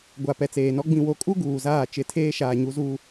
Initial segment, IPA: ɡʷ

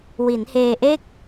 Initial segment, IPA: w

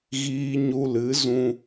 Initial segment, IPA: ɣ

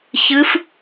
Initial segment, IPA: ç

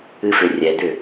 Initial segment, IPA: ɨ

